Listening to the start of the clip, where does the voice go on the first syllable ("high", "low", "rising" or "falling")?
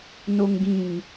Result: low